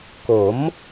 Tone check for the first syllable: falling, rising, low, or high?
rising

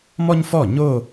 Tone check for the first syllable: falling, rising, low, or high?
high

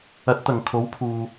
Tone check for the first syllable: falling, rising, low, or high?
rising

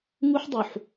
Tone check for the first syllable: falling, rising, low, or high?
high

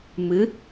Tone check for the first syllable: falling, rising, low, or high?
rising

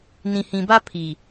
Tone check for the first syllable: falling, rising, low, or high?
low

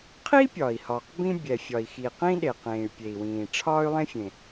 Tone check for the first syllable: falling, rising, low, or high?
high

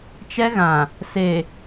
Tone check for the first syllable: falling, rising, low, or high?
high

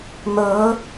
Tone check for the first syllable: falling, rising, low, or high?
rising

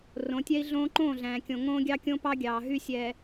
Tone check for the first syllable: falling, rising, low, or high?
rising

